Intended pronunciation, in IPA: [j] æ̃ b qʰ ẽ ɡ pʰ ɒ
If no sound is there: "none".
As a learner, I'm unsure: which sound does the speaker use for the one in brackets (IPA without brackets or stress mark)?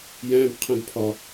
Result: j